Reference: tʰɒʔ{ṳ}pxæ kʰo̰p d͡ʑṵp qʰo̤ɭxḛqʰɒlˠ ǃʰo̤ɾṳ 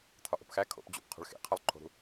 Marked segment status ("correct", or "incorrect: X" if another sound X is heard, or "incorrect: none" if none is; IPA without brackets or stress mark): incorrect: o̤